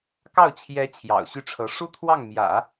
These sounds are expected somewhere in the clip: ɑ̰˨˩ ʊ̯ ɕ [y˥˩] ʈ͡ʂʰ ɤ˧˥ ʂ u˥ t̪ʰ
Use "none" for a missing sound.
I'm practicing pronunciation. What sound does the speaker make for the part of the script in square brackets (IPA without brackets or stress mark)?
y˥˩